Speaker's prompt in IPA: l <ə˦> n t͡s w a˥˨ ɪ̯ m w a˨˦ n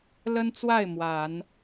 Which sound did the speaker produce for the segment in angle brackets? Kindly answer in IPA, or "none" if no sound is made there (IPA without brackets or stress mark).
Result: ə˦